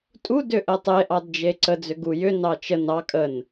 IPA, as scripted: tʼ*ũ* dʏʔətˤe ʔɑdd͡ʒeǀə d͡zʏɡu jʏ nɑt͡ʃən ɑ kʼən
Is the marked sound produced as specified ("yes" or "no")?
no